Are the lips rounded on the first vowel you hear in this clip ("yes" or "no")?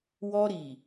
yes